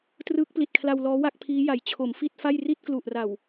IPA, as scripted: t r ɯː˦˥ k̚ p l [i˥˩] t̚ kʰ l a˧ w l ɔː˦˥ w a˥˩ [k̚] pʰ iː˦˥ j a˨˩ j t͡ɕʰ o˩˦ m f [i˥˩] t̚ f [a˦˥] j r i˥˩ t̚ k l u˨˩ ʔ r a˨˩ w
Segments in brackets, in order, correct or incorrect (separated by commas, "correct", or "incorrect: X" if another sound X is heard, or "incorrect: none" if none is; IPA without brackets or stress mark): incorrect: i˨˩, correct, correct, incorrect: a˥˩